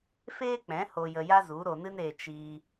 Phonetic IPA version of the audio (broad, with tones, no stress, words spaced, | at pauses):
feː˦k͡pɛ̃˨˦ ho˧jə˧ja˦zu˨˦ ɾo˧nɨ˦neː˧ t͡ʃiː˧